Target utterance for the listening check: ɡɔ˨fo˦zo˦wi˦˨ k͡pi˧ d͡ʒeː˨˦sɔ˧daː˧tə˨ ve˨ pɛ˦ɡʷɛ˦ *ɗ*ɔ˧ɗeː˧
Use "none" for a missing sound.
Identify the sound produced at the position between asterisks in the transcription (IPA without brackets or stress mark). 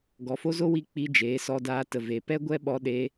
ɓ